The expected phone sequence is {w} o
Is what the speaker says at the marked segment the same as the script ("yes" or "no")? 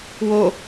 yes